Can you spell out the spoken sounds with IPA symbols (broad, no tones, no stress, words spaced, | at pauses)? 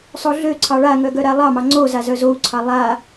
sˤoɮøǀʰɑ ɭaŋœ ɡœɾalˠɑmɑ ŋ͡ǀo zazœzou̯ǀʰɑ lˠa